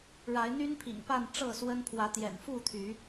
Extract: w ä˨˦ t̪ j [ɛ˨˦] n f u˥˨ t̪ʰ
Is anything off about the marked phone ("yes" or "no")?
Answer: yes